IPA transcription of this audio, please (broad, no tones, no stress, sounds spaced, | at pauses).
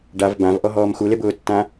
ɖ a v b ã v ʔ ɔ ɦ ɔː m x u l e b ʊː tː ã